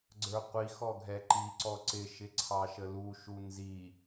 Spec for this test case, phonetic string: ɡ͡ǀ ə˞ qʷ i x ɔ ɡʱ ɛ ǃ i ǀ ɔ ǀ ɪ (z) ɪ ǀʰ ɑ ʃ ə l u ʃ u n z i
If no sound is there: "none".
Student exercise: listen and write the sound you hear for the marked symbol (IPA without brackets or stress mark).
ʃ